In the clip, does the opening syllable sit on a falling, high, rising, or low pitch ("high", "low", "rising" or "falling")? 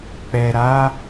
low